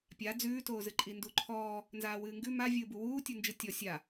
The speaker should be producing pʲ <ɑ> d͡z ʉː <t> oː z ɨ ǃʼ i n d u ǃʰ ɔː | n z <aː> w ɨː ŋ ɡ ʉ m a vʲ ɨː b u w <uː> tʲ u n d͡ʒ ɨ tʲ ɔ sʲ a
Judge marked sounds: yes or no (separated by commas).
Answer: no, yes, yes, yes